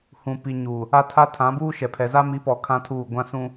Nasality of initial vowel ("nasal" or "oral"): nasal